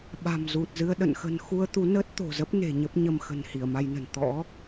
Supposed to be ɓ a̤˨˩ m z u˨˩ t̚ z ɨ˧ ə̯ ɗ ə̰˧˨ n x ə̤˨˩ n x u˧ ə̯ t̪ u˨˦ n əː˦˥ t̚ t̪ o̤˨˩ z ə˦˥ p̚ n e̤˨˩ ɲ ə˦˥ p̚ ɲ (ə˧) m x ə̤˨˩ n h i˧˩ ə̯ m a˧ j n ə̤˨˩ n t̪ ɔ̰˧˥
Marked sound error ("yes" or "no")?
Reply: no